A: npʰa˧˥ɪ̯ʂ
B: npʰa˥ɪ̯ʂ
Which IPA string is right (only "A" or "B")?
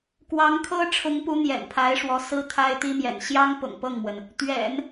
A